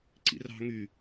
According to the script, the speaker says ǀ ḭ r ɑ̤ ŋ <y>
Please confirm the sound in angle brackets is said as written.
yes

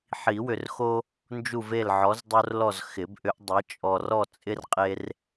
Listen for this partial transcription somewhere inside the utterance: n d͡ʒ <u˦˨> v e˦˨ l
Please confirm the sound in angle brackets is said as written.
yes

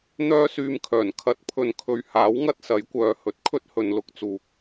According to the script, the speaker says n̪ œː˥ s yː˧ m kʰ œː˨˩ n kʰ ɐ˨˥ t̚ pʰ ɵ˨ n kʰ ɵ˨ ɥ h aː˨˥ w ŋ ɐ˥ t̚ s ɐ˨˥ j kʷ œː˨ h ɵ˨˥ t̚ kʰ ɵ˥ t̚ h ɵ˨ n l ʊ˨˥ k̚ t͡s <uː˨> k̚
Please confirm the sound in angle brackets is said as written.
yes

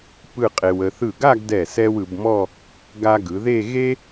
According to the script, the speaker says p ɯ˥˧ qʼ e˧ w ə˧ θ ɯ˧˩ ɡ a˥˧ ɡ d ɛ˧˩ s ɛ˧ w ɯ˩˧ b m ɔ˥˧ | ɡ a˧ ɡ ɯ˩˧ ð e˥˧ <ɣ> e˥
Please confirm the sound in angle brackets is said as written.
yes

